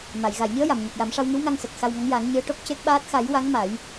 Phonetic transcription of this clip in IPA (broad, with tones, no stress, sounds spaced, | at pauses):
m a˨˩˨ j ɣ a˨˩˨ j ɲ ɨ˧˥ ə̯ j a˨˩˨ m ɲ ə˨˩ k̚ j a˨˩˦ m ʂ a˧ w ŋ ɨ˧˥ w ŋ a˧ ŋ s ə˨˩ k̚ x a˧ w ŋ a˧˥ ŋ j a˨˩˦ ŋ ɲ ɨ˧˥ ə̯ ʈ o˦˥ k̚ c e˦˥ k̚ ɓ aː˦˥ t̚ x a˨˩˦ j w a˧˥ ŋ m a˨˩˦ j